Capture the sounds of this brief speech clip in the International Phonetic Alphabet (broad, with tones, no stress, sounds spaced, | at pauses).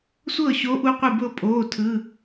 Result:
sʷ ɤː˥˩ ɕ o˨˥ ʔ u˨˥ qʷ ɯ˧˩ b ɤ˧ pʼ oː˩˧˩ tʰ ɯ˩˧˩